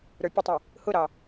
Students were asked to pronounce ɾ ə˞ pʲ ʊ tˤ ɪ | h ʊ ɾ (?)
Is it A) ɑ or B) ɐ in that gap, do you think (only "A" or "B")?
A